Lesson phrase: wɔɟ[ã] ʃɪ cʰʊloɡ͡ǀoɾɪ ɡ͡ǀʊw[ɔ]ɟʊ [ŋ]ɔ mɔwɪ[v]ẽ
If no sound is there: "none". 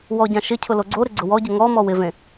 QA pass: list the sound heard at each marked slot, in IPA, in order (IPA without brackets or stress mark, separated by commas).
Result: ã, ɔ, ŋ, v